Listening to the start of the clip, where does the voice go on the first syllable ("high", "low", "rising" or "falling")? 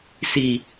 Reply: low